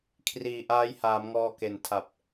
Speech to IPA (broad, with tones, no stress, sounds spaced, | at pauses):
kʰ r iː˨˩ ʔ aː˦˥ j h aː˩˦ m ŋ ɔː˧ k e˨˩ n tʰ a˨˩ p̚